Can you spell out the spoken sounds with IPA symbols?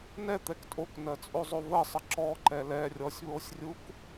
n ɛ t̪ ɛ k tʼ o k n ɜ t͡sʼ o zˤ o v ə sˤ ə ǁ ɔ ǃ ɛ l ɛ rʲ ɔ sʲ β o sʲ rʲ u k

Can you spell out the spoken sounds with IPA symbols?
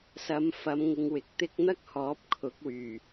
s ɐ˨˧ m f ɐ˨˧ m ŋ ɪ˨˧ ŋ w ɪ˨ k̚ t̪ ɪ˥ k̚ n̪ ɐ˥ k̚ h ɔː˨˥ p̚ kʰ ʊ˨˥ k̚ w yː˨˩

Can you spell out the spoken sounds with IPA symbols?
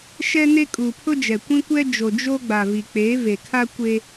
ʃ ɛ˦ n e˦ kʼ uː˨ pʰ ʊ˦ d͡ʒ ɛ˨ kʷ ĩ˦ kʷ ɛ˦ d͡ʒ o˨ d͡ʒ o˦ ɡ͡b a˨ v i˨ k͡p eː˨˦ v e˨ kʰ a˦ kʷ e˦

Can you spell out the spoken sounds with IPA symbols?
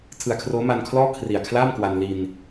tʰ ɯ˨˩ a̯ kʰ r oː˦˥ m a˧ n kʰ l ɔː˥˩ kʰ r i˨˩ a̯ kʰ l aː˥˩ m k w a˧ n l i˧ n

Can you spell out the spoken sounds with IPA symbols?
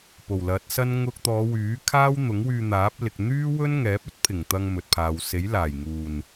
p o˨˩ w l ɐ˨˥ t̚ s ɐ˥ n ŋ ʊ˧ k̚ t̪ ɔː˨˧ w yː˨˥ kʰ aː˥ w n̪ ʊ˨˥ ŋ w yː˧ n̪ aː˨˥ p̚ l ɪ˨ k̚ n̪ yː˥ w ɵ˥ n ŋ ɛː˨˥ p̚ ɵ˥ t̚ pʰ ɪ˨˩ ŋ t̪ ɐ˧ ŋ m ɵ˨ t̚ pʰ aː˨ w s e˨˥ j l aː˨˩ j ŋ uː˨˩ n

